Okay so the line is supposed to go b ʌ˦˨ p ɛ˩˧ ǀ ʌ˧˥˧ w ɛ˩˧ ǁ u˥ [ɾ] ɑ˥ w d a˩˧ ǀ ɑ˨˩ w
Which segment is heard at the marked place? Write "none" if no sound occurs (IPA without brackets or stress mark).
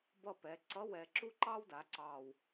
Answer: ǃ